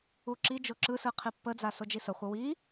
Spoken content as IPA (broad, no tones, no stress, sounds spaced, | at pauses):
u ǁ i d͡ʒ o ǁ ɯ s ɯ qʰ i pː ə d͡z a s o d͡ʒ i s ə χʷ ə w i